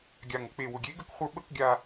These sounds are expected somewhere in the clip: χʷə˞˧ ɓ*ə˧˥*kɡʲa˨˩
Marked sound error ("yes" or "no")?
no